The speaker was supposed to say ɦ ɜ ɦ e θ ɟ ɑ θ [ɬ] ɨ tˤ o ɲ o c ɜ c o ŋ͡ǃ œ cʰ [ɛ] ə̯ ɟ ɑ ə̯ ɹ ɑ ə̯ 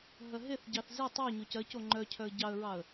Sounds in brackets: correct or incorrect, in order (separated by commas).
incorrect, incorrect